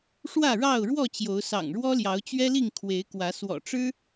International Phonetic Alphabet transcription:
ʂ w ä˥˨ ɻ ɑ˥˨ ʊ̯ ɻ w ɔ˥˨ t͡ɕ j o˨˦ ʊ̯ s ɑ̰˨˩ ŋ ɻ w ɔ˦ l j ɑ˨˦ ʊ̯ t͡ɕ ɥ ɛ˦ l i˥˨ ŋ kʰ w e˨˦ ɪ̯ k w ä˨˦ s w ɔ̰˨˩ ʈ͡ʂ ɻ̩˦

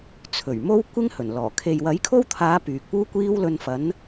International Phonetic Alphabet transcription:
t͡sʰ ɵ˨˩ ɥ m o˥ w kʷ ɪ˥ ŋ h ɵ˨˩ n l ɔː˨˩ kʰ e˨ j w ɐ˨˥ j kʰ o˥ w t̪ʰ aː˨˧ p yː˨ k̚ p uː˥ kʷ iː˥ w l ɵ˧ n f ɐ˨˥ n

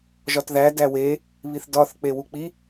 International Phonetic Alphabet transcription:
ʒ ɒ t ð æ d æ w e | β i θ d ɒ θ k͡p e w u k͡p i

